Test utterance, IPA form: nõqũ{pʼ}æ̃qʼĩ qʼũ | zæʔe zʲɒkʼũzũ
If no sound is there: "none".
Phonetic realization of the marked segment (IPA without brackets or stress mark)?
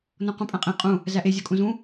pʼ